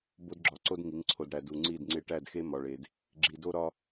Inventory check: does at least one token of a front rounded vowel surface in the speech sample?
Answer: no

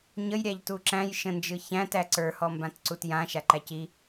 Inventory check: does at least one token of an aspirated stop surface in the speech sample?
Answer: no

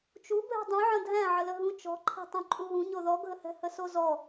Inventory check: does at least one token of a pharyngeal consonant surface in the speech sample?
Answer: yes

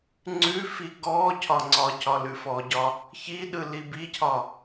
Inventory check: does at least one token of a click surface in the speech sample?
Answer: yes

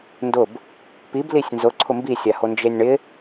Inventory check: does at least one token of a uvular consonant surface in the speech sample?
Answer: no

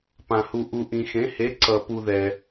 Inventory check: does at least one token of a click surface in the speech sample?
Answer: yes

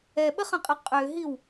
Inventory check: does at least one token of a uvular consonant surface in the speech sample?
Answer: yes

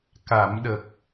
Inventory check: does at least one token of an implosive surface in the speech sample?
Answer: yes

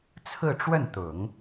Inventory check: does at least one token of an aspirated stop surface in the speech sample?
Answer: yes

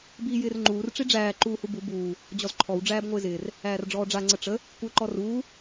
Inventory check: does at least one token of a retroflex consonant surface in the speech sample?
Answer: yes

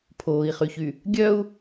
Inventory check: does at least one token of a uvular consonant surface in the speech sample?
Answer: yes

